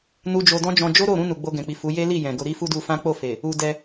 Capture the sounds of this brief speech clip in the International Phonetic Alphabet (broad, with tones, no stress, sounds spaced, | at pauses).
n u˦ d͡ʒ o˧ d ɔ̃˦ d͡ʒ ɔ̃˧ d͡ʒ o˦ ɾ o˦˨ ɾ ũ˧ n u˨ ɡ͡b o˧ ɡ ɛ̃˨ k͡p i˨ f u˨˦ j e˦ l i˦˨ j ɛ̃˨ ɡ o˧ ɾ i˦ f u˦ d u˧ f ã˦ k͡p o˦˨ f e˨ | u˧ d ɛ˧